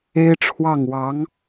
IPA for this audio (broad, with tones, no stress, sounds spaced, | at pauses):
e˥ ɪ̯ ʈ͡ʂʰ w ɑ˥˩ ŋ w ɑ˧˥ ŋ